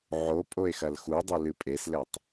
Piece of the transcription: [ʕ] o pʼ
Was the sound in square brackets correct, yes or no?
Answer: yes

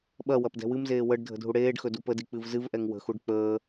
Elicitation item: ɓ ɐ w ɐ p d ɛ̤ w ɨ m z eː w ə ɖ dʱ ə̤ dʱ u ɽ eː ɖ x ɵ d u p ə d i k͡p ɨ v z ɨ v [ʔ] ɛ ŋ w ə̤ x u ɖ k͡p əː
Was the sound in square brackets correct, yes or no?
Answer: yes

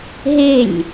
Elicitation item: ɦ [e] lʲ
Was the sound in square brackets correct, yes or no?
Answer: yes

